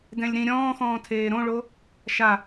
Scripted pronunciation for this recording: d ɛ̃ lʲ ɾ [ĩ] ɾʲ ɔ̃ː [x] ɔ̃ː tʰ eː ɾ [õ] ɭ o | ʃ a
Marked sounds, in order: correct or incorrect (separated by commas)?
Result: correct, correct, correct